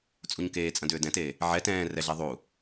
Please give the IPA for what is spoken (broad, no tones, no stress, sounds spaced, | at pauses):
t͡sʼ u ɲ k eː t͡sʼ ɐ̃ d ʏː d ɛ̃ t eː | ʕ ɛ t ɛ̃ː r ɛ ɮ ɛ ðˤ uː